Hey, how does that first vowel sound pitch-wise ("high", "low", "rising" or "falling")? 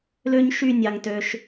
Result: high